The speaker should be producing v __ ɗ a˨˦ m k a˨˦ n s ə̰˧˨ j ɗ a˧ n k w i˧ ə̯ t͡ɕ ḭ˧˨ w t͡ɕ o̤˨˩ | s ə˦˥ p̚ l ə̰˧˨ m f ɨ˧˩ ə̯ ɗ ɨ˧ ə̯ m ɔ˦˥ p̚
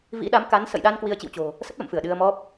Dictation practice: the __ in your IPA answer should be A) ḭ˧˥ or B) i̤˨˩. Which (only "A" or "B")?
A